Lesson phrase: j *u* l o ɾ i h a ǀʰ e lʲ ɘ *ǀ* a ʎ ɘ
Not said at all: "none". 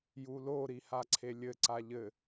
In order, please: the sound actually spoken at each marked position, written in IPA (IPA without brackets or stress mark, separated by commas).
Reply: u, ǀ